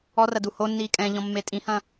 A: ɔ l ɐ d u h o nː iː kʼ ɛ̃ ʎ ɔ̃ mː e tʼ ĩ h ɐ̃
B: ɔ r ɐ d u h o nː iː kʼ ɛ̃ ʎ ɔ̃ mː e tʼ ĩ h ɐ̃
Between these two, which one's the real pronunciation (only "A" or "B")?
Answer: B